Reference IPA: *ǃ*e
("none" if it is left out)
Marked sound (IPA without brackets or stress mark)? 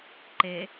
ǃ